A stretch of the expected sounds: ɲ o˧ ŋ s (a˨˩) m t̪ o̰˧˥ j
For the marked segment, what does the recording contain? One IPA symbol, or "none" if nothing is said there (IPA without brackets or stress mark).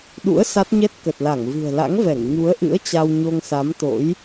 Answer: a˨˦